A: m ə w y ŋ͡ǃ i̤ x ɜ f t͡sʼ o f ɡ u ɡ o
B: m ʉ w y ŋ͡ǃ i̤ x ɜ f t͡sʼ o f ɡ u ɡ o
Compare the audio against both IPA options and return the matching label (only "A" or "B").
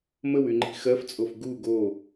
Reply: A